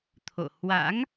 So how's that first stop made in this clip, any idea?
aspirated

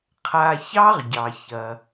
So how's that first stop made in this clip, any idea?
aspirated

